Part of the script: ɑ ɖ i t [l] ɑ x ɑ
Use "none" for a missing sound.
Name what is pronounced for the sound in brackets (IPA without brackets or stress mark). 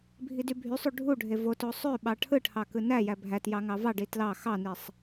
l